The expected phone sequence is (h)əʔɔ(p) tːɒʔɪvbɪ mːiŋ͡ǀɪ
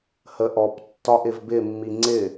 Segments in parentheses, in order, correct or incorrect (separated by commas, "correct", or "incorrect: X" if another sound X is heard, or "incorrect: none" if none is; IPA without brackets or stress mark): correct, correct